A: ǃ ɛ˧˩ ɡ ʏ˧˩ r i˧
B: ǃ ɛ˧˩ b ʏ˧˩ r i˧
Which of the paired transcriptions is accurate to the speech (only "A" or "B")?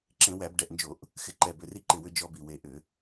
B